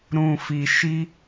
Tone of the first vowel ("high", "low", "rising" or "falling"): low